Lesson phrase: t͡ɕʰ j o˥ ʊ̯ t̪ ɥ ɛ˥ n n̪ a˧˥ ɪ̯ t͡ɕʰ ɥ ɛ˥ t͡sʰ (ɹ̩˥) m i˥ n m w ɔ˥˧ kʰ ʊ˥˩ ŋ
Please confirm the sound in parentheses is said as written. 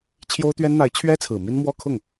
no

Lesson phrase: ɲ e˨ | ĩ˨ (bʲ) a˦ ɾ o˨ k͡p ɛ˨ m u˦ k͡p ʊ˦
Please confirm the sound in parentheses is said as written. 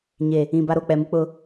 no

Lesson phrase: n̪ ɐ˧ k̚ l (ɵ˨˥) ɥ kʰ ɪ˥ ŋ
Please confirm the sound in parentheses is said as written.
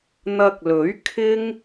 yes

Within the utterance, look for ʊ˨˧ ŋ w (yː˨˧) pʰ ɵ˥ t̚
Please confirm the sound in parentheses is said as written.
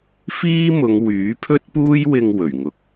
no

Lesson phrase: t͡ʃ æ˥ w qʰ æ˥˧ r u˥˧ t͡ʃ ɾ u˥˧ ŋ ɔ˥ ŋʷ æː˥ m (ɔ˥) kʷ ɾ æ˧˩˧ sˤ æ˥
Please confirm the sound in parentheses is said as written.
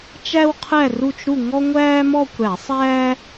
no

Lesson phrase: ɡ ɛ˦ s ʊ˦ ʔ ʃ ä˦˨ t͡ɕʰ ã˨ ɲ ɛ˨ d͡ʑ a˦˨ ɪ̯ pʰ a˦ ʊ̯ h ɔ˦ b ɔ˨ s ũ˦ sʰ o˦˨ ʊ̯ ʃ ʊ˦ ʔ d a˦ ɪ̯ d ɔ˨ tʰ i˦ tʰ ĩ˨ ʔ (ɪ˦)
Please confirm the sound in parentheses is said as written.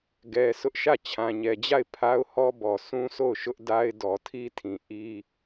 no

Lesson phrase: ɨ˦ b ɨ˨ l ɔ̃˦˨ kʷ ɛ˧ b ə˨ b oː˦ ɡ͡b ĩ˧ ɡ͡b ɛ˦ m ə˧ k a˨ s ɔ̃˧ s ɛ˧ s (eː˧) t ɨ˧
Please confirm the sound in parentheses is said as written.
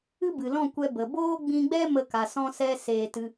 yes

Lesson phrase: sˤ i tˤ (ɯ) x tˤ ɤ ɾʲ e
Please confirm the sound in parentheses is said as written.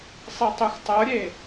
no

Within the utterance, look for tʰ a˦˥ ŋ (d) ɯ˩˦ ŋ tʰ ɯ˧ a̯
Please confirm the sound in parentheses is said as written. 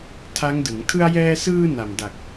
yes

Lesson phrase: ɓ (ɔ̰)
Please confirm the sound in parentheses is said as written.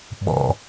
yes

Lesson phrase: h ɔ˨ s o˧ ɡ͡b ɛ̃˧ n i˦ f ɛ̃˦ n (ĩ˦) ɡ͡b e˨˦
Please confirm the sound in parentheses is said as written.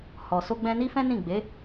no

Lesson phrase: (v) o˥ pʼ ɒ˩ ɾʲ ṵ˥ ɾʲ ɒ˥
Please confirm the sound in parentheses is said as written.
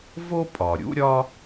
yes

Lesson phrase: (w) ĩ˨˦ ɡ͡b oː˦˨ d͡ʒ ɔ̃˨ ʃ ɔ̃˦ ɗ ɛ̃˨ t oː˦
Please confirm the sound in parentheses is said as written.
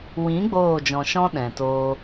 yes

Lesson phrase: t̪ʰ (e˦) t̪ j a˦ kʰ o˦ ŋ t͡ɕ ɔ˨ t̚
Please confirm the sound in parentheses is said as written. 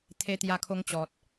yes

